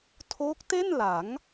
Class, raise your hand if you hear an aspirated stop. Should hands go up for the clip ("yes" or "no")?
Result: yes